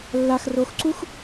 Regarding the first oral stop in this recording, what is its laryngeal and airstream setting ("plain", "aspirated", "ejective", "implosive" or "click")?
click